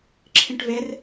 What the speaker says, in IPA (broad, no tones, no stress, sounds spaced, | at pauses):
ǁʰ ĩ ʈ v e r